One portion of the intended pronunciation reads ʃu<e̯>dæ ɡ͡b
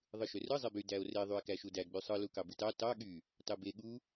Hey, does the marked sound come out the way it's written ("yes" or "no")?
no